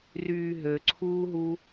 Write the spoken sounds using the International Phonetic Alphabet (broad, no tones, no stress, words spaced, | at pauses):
ryːɦøǀʰuːɦu